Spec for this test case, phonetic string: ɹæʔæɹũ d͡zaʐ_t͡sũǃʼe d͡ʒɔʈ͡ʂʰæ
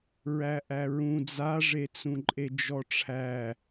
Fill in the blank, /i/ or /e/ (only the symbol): e